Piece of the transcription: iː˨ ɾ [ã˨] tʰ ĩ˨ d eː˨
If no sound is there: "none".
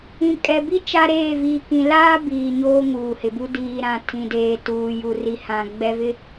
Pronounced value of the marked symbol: ã˨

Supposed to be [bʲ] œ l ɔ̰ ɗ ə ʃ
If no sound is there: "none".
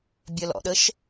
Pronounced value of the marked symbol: bʲ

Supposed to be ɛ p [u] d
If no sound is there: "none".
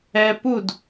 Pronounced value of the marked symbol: u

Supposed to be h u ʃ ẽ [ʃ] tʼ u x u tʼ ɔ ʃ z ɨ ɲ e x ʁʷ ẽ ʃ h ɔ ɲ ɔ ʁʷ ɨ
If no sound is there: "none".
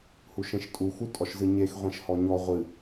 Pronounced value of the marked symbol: ʃ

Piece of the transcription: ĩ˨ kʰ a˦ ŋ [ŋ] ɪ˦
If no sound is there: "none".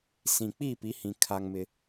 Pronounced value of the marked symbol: m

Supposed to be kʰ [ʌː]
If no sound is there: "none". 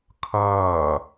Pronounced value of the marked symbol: ʌː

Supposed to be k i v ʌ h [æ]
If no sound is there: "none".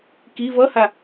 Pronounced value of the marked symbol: a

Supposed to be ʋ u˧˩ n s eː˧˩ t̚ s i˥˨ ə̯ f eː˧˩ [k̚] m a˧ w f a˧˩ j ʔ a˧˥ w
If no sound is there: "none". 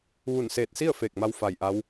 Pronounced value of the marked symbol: k̚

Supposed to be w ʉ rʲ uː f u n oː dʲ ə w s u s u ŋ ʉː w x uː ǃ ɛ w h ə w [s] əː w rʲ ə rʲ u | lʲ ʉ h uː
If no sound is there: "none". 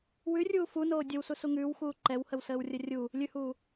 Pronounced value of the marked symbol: s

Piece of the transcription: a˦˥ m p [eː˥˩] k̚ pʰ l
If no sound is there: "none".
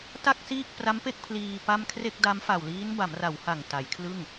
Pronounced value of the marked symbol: e˥˩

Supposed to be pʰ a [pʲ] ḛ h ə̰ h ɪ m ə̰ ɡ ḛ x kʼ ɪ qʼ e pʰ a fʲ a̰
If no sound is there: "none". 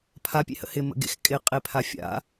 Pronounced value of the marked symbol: pʲ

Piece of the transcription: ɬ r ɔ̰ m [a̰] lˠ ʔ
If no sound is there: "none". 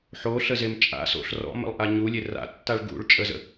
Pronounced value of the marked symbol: ə̰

